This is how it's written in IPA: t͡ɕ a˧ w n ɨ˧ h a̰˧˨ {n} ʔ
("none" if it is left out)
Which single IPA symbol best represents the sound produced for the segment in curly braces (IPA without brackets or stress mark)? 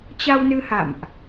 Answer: m